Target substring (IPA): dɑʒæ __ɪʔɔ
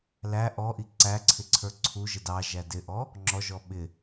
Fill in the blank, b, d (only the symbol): d